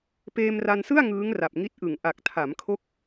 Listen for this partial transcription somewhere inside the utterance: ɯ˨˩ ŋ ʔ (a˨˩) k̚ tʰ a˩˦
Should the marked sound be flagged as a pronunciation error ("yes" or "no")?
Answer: no